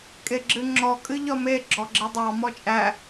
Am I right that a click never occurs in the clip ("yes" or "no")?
no